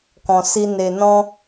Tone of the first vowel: low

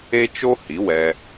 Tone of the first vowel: high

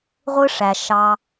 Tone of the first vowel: high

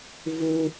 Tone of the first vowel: high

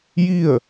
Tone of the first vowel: falling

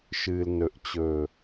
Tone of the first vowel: low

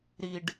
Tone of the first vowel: low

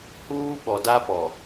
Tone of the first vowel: high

